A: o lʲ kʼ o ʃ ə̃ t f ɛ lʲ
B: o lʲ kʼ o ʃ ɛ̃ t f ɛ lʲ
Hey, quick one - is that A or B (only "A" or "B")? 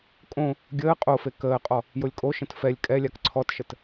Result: A